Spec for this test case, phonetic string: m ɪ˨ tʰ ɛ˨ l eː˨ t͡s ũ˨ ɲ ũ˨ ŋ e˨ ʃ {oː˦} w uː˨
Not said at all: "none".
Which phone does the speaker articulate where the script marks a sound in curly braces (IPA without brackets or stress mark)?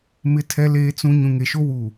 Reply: o˦